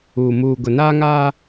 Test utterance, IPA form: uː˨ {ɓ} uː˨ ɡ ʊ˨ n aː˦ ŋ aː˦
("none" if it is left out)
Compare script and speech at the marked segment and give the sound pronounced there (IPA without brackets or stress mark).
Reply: m